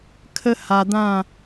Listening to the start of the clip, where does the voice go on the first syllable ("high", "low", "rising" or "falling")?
high